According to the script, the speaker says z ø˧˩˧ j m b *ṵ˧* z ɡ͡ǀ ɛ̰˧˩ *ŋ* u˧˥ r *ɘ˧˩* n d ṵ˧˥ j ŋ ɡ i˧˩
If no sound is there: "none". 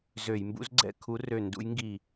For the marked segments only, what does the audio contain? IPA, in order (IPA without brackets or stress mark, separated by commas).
ṵ˧˥, kʰ, ø˧˩